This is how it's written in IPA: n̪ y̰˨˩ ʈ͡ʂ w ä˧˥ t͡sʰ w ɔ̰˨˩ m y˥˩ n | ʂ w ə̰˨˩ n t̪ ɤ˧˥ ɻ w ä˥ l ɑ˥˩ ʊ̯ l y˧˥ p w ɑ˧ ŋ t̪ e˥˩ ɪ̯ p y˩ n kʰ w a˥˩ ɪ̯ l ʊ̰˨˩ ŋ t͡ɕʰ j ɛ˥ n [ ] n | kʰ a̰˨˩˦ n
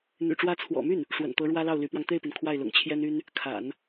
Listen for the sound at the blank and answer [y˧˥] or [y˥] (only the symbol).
y˥